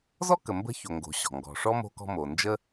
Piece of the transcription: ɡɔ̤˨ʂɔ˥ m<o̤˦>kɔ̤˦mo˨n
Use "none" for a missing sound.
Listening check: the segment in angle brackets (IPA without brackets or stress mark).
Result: o̤˦